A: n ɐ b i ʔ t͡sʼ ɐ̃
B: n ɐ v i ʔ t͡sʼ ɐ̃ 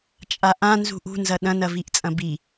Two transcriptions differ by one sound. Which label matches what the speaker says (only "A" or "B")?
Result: B